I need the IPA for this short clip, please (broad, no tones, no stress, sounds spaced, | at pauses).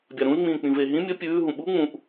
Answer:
bʲ a ɾ ũ y̯ ŋ͡m ĩː k͡p ĩ v e ɦ ĩ mʲ ɵ pʲ ʉː ɦ ũ ɓ u ŋ͡m ũ ʔ